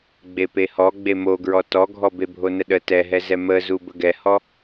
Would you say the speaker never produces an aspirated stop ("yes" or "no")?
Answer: yes